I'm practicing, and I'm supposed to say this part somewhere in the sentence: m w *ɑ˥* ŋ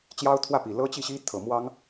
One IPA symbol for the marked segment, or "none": ɑ˥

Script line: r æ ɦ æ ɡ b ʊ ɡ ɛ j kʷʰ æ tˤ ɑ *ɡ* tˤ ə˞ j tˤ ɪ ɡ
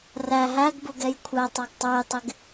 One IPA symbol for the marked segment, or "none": ɡ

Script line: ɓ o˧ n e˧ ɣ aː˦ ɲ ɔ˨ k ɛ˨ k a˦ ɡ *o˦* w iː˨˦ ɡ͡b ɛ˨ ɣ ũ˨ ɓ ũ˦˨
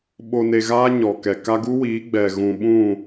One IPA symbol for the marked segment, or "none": u˦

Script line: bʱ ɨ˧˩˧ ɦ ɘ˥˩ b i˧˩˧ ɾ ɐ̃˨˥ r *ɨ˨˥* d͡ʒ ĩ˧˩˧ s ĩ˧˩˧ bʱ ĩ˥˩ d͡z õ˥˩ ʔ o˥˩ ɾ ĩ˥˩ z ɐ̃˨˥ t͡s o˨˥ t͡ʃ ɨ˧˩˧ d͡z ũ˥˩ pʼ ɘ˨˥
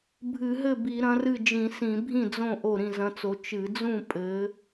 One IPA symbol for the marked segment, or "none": ɨ˥˩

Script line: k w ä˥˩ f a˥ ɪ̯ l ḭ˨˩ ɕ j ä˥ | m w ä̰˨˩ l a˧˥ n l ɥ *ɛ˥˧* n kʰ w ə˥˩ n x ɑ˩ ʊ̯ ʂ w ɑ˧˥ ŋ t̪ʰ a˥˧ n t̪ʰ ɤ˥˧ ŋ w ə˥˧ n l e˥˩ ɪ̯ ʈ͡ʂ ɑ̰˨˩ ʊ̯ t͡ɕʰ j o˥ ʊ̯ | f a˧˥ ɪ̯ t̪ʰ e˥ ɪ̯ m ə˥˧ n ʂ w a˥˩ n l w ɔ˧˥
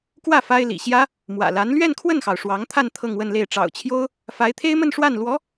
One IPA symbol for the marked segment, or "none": ɛ˥˧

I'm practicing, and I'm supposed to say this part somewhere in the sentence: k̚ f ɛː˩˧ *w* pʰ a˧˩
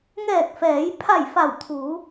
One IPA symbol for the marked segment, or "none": j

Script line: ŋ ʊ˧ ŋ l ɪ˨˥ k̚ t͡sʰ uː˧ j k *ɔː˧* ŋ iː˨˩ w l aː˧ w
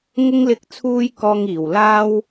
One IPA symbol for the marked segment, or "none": ɔː˧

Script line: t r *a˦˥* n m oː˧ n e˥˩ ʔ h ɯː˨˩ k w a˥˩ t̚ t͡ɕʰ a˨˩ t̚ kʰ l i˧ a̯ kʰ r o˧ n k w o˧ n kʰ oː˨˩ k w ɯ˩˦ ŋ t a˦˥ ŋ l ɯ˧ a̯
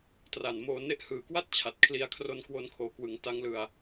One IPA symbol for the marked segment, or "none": a˨˩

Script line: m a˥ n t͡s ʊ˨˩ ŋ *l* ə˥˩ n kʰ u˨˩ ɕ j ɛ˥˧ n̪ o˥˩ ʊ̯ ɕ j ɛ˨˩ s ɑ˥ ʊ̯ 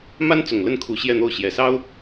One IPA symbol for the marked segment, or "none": l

